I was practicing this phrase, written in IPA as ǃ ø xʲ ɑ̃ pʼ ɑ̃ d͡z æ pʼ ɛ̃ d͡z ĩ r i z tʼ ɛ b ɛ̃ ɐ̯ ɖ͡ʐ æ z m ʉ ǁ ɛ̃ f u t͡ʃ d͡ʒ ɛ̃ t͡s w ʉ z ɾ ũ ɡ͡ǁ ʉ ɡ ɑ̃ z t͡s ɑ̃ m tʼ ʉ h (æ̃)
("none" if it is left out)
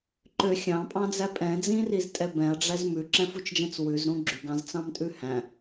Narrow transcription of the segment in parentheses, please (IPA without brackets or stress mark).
æ̃